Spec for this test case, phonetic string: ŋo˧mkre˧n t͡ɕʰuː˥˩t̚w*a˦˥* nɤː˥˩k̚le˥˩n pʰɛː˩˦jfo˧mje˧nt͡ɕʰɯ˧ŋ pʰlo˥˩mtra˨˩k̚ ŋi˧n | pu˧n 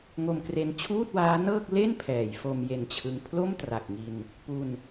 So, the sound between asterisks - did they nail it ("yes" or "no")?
no